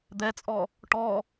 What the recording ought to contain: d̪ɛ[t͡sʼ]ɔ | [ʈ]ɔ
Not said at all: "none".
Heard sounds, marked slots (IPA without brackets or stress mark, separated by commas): t͡sʼ, ʈ